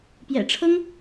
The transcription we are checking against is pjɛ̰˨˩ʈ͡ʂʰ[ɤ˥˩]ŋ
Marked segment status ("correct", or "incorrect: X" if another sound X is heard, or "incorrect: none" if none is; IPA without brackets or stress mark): incorrect: ɤ˥